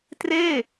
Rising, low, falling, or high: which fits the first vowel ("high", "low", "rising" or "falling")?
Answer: falling